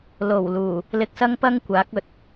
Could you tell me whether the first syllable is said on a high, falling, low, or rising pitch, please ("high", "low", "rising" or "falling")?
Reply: low